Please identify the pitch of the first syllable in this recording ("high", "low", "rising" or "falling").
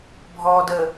low